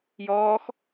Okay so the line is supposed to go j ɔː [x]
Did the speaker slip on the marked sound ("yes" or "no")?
no